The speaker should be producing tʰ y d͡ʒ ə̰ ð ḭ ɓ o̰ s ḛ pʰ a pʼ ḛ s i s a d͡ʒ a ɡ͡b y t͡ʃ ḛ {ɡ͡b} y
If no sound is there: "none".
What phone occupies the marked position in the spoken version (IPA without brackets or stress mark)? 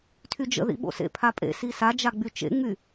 ŋ͡m